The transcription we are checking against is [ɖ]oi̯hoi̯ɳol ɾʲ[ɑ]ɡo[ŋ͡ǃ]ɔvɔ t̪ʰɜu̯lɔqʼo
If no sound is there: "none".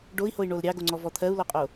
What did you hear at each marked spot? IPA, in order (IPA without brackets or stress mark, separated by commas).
ɖ, ɑ, ŋ͡ǀ